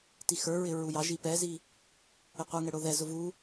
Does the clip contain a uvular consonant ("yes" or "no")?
yes